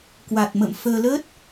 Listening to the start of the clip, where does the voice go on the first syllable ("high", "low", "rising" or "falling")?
low